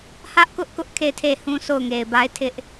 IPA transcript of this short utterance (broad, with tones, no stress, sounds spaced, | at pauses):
h ä˦ ʔ k ʊ˦ ʔ k ʊ˦ ʔ kʰ e˦˨ ɪ̯ tʰ e˦˨ h ũ˦ sʰ o˦˨ ʊ̯ ŋ e˨ ɪ̯ b a˦ ɪ̯ tʰ ɪ˦ ʔ